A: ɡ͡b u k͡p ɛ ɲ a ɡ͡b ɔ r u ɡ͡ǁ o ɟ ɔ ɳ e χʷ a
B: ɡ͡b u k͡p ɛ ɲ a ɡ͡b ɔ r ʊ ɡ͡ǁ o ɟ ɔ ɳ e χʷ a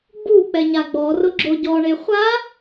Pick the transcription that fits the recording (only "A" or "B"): B